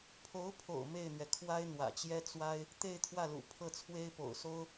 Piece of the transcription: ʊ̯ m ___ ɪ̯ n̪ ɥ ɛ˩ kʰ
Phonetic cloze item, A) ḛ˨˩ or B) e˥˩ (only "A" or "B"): B